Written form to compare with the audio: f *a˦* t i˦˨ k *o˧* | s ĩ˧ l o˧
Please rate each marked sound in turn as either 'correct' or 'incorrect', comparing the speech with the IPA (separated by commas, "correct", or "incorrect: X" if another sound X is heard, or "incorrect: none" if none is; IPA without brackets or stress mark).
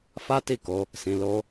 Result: correct, correct